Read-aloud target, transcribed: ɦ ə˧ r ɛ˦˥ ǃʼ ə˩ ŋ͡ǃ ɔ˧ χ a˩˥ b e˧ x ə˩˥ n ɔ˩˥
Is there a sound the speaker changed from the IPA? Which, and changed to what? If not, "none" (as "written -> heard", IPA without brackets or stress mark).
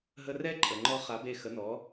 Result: none